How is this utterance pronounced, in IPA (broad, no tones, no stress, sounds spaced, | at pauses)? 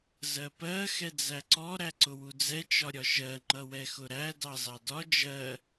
z ɜ p ɜ x ɛ d͡z æ ǀ ɔ ɾ æ ǀ ʊ w u d͡z ɛ t͡ʃ ɒ ɾʲ ɒ ʃ ɜ ŋ͡ǃ ʌ w ɛ x ʊ ɾ æ d ɑ z ɑ d ɒ d͡ʒ ɜ